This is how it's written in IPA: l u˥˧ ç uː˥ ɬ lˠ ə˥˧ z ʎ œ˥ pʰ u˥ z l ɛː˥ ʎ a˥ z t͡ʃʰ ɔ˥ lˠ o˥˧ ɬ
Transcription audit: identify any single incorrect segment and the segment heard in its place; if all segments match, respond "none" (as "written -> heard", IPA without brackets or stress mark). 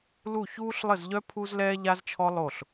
none